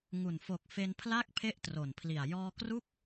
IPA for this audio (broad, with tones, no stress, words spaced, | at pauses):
ŋu˨˩n fo˨˩k̚fe˧n pʰla˥˩k̚ pʰe˥˩ʔtro˨˩npʰli˨˩a̯ jɔː˧kru˥˩k̚